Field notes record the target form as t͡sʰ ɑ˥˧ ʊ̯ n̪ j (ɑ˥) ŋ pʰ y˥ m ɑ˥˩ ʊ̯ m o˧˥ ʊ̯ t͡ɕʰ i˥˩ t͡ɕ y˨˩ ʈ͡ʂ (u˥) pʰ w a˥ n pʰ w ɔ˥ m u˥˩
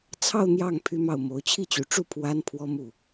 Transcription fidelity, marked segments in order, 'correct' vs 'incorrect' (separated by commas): incorrect, incorrect